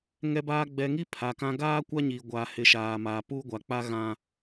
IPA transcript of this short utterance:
ŋ ɛ˨ b aː˨ ɡ͡b ɛ˨ ŋ i˦ pʰ a˨ k ã˦ ɡ aː˦ kʷ a˦ ɲ iː˨ ɡʷ aː˨ h ɪ˨˦ ʃ aː˨ m aː˨ p uː˦ ɡʷ a˨ k͡p a˦ ɣ ã˦

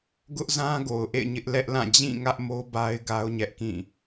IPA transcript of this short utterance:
ɡ ʊ˦ ʔ z ã˦ ɡ o˨ ʊ̯ ʔ ḛ˦˨ ɪ̯ ɲ ɪ˦ ʔ l ɛ˦ ʔ l ã˦˨ d͡ʑ ĩ˦˨ ŋ ä˦ ʔ m o˦ b a˦ ɪ̯ ɡ a˦ ʊ̯ ɲ ɛ˦ ʔ k ĩ˦˨

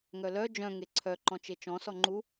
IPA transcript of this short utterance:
ŋ œ l œ d͡ʒ œ̃ ŋ e ǀʰ œ ǃ ɔ̃ t͡ʃ e t͡ʃ ɔ̃ s ɔ ŋ͡ǃ u

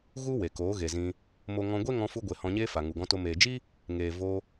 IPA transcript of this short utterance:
ɣ u˦ w e˨ k oː˨˦ ɣ e˨ z ĩ˧ | m o˧ ŋ ɔ̃˧ ɡʷ e˦ ŋ ɔ̃˧ f u˧ ɡʷ e˨ h ɔ̃˧ ɲ eː˦ f a˨ ŋ u˨ ɡ ɔ̃˧ t o˧ m eː˨ d͡ʒ i˦ | ŋ eː˨ v o˧

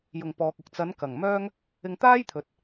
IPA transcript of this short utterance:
j ʊ˨˩ ŋ p ɔː˨ k̚ ʊ˨ k̚ t͡s ɐ˨˧ n k ɐ˨˩ ŋ m œː˥ ŋ | ɪ˧ ŋ t̪ aː˥ j t̪ʰ ɵ˨˥ t̚

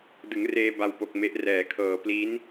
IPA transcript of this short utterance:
d ɯ˩˦ ŋ r eː˧ b a˧ w p o˨˩ k̚ m e˦˥ ʔ r ɛː˩˦ kʰ ɤː˨˩ p l i˦˥ n

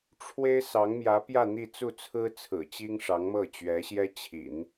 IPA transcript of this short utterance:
ʈ͡ʂʰ w e˥ ɪ̯ s ɑ˧˥ ŋ m j ä˧˥ p j ä˥˧ n̪ i˥˧ t͡s u˥˩ t͡sʰ ɹ̩˥ t͡sʰ ɹ̩˨˩ t͡ɕ i˥ ŋ ʂ ɑ˧˥ ŋ m ɤ˥˩ t͡ɕ ɥ ɛ˧˥ ɕ j ɛ˥ t͡ɕʰ ḭ˨˩˦ n

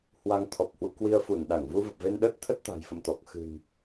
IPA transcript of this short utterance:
h w a˧ ŋ t̪ʰ ɔ˨˩ p̚ h w ṵ˧˨ k w i˧ ə̯ f u˧˩ n ɗ a˧˩ ŋ v u˧ v ə˨˩ p̚ v e˧ n ɗ ə˦˥ t̚ t̪ʰ ə˦˥ t̚ t̪ a̤˨˩ j f ə̰˧˨ m t̪ ɔ˨˩ k̚ x ɨ̤˨˩ n

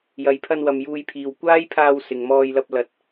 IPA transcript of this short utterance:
j ɐ˨ j pʰ ɐ˧ n w ɐ˨ m j uː˧ j pʰ iː˨ w kʷ aː˥ j pʰ aː˧ w s ɪ˨ ŋ m ɔː˧ j l ɐ˧ p̚ l ɐ˨ t̚

